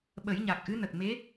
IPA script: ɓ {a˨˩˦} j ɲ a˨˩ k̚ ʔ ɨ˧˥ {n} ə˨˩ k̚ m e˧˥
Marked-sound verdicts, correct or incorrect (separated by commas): incorrect, correct